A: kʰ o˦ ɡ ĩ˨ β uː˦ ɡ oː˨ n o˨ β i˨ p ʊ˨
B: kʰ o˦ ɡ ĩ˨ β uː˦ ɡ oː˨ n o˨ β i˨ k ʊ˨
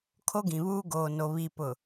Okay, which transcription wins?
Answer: A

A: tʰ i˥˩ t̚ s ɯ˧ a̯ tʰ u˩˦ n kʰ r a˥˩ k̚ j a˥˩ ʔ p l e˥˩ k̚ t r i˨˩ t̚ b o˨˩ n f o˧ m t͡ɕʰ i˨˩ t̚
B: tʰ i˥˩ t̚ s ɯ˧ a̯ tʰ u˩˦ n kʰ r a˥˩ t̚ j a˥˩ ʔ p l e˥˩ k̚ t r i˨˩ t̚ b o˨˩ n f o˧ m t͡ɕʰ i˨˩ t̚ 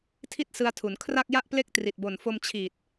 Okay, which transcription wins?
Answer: A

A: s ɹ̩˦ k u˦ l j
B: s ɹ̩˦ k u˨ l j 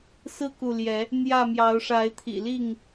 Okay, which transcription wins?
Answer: B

